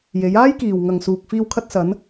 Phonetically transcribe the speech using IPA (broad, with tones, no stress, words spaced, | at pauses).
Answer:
je˨˧jaː˥jkiː˨w ŋɐ˨ŋsuː˨k̚ fiː˧wkʰɐ˧t̚sɐ˨˧n